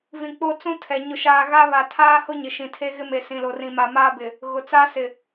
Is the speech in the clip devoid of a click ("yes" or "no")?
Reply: yes